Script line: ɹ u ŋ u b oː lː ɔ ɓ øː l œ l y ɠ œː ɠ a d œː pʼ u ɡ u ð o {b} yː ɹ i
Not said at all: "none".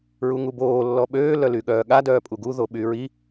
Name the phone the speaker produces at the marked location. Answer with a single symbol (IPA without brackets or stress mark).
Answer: ɓ